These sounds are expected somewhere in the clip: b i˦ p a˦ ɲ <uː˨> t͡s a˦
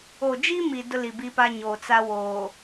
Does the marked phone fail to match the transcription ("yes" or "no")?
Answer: yes